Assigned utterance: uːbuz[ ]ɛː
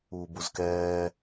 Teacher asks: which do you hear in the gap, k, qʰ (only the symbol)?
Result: k